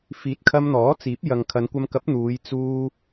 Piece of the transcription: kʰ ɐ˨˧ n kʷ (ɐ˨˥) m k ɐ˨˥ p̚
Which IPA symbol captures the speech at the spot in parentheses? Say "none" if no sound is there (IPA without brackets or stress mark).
ɐ˧